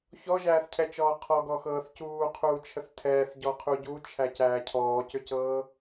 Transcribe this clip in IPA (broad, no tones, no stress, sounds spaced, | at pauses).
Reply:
ç ɔ ʒ æː θ cʰ ɛ t͡ʃ ɔː qʰ ɔ ɡ ɔ x ɤː θ c uː qʰ uː t͡ʃʰ ə θ tʰ ɛː θ ɟ ɔ qʰ u ɟ u t͡ʃʰ æ c æː cʰ ɔː c ʏ c ɤː